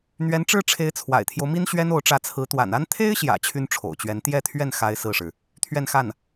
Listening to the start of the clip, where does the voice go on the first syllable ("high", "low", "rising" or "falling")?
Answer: rising